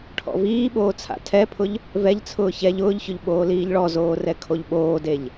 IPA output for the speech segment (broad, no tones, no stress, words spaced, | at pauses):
ʈʰɔ̰viːɓoː t͡sʰa̰tʰɛpʰʊʎ | vɛʎt͡sʰʊː çɛʎ ʊːʎçʊʎ ɓoːliːʎɭɔzoː rɛkʰoʎɓoːdeʎ